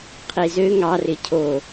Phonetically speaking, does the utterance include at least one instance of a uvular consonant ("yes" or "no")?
yes